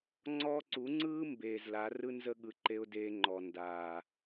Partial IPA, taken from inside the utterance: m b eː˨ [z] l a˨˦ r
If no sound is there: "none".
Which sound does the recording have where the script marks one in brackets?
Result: z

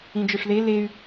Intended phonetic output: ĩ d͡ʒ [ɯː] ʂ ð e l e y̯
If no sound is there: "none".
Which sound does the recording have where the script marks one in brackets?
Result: ɯ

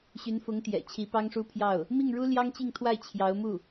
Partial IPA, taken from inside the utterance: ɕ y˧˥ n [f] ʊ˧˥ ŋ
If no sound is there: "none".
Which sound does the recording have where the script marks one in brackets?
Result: f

